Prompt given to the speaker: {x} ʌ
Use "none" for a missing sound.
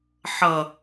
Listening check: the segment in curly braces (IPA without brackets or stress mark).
ħ